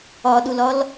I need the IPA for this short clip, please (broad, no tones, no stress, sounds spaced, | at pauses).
ɒ ɗ u l ɒ l